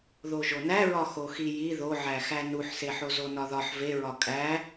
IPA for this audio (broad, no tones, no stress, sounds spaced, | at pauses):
ð o ʒ o n æ ɹ ɒ x o x i j i ð o ʕ æ x æ n u ħ s e ħ o z o n ɒ ð ɒ ħ v e ɹ ɒ kʼ æ